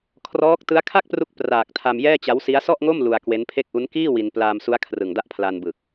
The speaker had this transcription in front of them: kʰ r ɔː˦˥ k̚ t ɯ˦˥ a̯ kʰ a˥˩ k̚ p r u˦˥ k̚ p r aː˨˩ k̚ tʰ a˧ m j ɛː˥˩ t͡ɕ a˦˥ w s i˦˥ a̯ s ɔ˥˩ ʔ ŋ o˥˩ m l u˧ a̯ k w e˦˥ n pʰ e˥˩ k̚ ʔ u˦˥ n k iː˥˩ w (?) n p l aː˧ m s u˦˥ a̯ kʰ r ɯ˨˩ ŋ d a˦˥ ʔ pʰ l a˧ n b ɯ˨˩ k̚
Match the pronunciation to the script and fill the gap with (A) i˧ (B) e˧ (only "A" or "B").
A